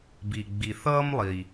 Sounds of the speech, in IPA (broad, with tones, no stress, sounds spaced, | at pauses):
b i˩ ɡ͡b i˩ θ ʌː˦ m lˠ i˩